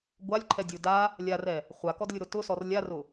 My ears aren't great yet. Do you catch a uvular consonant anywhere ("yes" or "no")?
yes